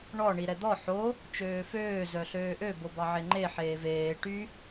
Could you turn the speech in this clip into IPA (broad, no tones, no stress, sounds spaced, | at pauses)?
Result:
ɳ ɔ ɳ i ɾ ɛ d̪ ɔ ħ o | t͡ʃ øː f øː z œ ɬ øː ʔ ø b o b ɑ ʕ e ŋ͡ǃ e ħ eː v eː ʈ y